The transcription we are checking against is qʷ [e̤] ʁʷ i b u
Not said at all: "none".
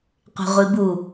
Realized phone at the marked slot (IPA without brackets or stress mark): e̤